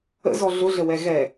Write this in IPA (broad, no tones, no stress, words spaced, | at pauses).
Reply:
ə̰zɔ ɮʊɮəwɛ ɣɛ